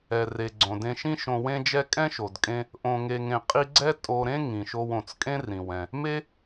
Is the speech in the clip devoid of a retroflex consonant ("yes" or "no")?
yes